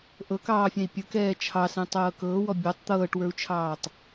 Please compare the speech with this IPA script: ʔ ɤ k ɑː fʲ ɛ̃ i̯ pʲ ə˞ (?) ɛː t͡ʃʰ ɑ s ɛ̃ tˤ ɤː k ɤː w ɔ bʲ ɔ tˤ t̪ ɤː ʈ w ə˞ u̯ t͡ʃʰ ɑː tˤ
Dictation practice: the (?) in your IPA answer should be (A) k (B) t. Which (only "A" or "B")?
A